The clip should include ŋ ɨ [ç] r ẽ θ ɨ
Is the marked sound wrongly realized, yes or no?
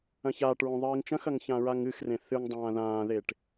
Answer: yes